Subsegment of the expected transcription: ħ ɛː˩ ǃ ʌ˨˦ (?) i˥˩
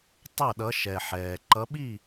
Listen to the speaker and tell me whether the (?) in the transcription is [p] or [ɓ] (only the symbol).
ɓ